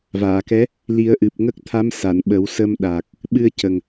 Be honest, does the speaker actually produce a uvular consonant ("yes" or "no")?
no